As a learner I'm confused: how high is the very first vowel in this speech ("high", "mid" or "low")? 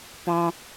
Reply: mid